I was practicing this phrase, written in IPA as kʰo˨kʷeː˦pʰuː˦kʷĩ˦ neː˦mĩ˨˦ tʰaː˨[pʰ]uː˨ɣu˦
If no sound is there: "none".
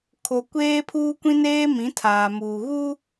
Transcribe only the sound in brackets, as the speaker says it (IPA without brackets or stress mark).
m